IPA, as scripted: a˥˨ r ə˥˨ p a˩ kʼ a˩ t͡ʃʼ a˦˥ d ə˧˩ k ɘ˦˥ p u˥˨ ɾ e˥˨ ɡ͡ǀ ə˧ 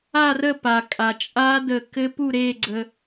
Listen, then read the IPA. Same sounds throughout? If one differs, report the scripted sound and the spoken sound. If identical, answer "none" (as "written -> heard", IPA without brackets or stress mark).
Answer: none